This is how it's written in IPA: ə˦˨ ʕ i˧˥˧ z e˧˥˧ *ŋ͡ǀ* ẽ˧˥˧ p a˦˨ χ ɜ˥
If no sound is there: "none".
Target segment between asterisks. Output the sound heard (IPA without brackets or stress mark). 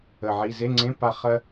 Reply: ŋ͡ǀ